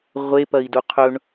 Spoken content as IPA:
ʁʷ e p ɐ i̯ d u qʰ ɵ ɳ

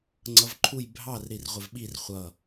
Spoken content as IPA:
ŋ͡ǀ ʌ v ǃʰ u j bʱ ɑ r ɾ i r ʁʷ ɪ v ɓ i r χʷ ʌ

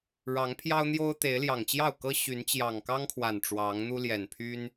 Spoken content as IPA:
ɻ ɑ˨˦ ŋ pʰ j ɑ˦ ʊ̯ n̪ j o˦ ʊ̯ t̪ e˨˦ ɪ̯ l j ɑ˨˩ ŋ t͡ɕ j ɑ˥˨ ʊ̯ k ɤ˦ ɕ y˨˦ n t͡ɕ j ɑ˨˩ ŋ k ɑ˦ ŋ kʰ w a˨˩ n ʈ͡ʂ w ɑ˨˦ ŋ n̪ u˦ l j ɛ˨˩ n pʰ y˦ n

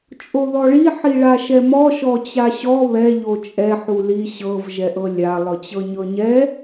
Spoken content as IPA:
t͡ʃʼ o ð ɔ ɭ i ħ i ɭ a ʃ ɛ m ɔ ʃ ɔ t͡ɕ a ɕ ɔ β ɛ ʎ o t͡ʃʼ ɛ ħ u l i ɕ ɤ v ʒ ɛ ʔ ɤ lʲ a lˠ ɯ t͡ɕ ɤ ɲ ɤ ɲ ɛ

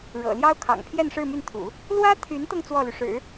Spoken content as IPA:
ɻ ɤ̰˨˩ l j ɑ˥ ʊ̯ kʰ ɑ̰˨˩ ŋ pʰ j ɛ˥˧ n ʂ ɻ̩˥˧ m y˥˩ n t̪ʰ ṵ˨˩˦ | l w ä˥ t̪ʰ y˧˥ n t̪ ɤ˧ ŋ t͡s w ɔ˥˩ l y˩ ʂ ɻ̩˨˩˦

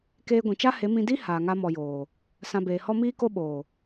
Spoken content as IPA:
k eː˧ ɡʷ ĩ˨ t͡ʃ a˦ h e˨˦ m ĩ˧ d i˦ h aː˨ ŋ a˧ m ɔ˨ j oː˨ | s ã˧ b eː˨ h ɔ˦ m iː˦ k o˦ ɓ oː˨

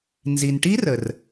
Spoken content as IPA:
n z i˩ n ʈ i˦˥ r ə˩ r

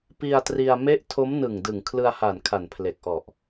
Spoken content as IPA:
p i˧ a̯ t r i˧ a̯ m e˦˥ ʔ tʰ o˦˥ m n ɯ˨˩ ŋ d ɯ˨˩ ŋ kʰ l ɯ˧ a̯ h a˨˩ n kʰ a˨˩ n pʰ l e˨˩ k̚ ʔ ɔ˨˩ ʔ

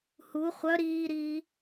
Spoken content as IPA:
h u χʷ œ ɾ iː ɾ iː

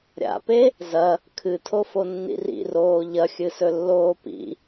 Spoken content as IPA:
ɾʲ a̰ p e | z ɐ | kʰ ɨ tʰ o f o nː ḭ r ḭ r oː ʎ ɐ xʲ ɨ s ɵ lː oː p ḭ

